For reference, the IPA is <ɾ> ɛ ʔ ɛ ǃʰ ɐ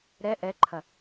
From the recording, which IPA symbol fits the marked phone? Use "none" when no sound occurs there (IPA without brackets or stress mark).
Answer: ɾ